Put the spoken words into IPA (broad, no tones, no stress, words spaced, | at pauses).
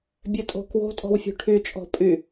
bʲɛtʼo̤kwo̤ tʼɔ̤wfʲṳʈʰy t͡ʃʼɔ̤pʼy